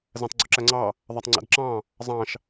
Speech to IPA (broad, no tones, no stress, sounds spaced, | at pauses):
z æ̃ tˤ ɡ͡ǀ o ǁ æ ŋ͡ǀ ɑ | ðˤ æ tˤ ŋ͡ǀ æ̰ d ǁ ɑ̃ | zˤ ɑ̃ ʃ